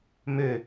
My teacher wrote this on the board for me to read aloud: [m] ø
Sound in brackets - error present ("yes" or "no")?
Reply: no